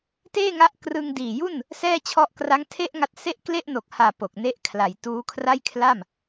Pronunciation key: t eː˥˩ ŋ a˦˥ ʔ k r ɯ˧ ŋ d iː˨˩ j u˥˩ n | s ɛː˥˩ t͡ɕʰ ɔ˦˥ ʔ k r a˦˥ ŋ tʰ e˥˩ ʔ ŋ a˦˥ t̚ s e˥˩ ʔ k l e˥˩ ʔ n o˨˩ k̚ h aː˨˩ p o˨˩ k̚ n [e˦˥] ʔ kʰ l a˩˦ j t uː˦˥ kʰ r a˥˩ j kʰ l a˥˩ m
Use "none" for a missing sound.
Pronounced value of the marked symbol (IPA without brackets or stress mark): e˦˥